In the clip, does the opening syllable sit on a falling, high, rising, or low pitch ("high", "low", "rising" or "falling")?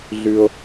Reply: high